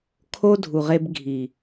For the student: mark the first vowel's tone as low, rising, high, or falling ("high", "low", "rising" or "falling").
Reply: high